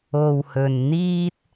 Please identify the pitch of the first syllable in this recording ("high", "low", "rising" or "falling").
low